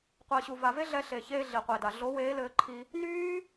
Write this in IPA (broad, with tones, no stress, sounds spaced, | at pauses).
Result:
qʷ ɘː˨ ɕ u˨ v a˨ v e˦ ɮ ɛ˧ ɬ e˨ ç eː˧ ɮ i˨ qʷ e˨ d a˨ ɮ o˨˦ w eː˨˦ l ɘː˧ ǃʰ i˧ | n yː˦